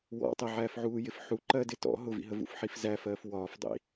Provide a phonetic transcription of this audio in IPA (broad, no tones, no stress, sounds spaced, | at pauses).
w ɔ̰ tˤ ɪ ʕ æː f ʕ uː j ɪ f ħ u ǃ ɜ d ɪ t ɔ̰ ɦ ʊ v ḭ ɦ ə v ṵ f ħ i f z æ f ɜː f w ɒː f dˤ ḭ